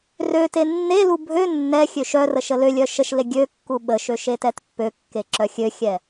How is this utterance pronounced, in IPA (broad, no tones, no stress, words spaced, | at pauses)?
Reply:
rø tenːelu bʱø nːɛxʲøʃ œrə ʃəlølʲœ ʃəʃle ɡʲøkːu ɓəʃø ʃetɛtpːøkːe ǁœxʲøxʲɛ